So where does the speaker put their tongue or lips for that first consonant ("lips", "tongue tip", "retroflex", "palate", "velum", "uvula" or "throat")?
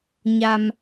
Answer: palate